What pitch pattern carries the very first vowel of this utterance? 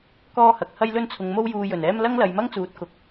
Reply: high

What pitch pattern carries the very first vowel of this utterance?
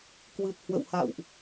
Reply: low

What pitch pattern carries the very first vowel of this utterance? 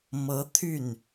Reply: rising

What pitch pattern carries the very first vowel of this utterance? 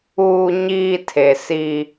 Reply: low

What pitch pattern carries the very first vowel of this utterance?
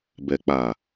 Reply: low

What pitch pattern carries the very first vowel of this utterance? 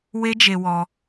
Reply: high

